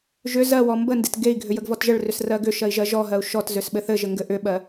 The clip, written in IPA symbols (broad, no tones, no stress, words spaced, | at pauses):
ʒʏ zɜwɔ mbəndet ɡei̯ɡʱʏ jəɡvɔtʒəɭrʏs rɜɡʏʃɜi̯ ʒɜʒɔɦɜu̯ ʃɔt zʏsɓɘθɘʒɘ ŋɡɘʔʏɓɜ